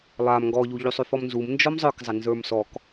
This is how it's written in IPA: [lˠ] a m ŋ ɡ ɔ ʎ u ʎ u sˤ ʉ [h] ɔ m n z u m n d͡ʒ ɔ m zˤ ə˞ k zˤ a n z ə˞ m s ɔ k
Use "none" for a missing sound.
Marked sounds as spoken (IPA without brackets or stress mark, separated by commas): lˠ, f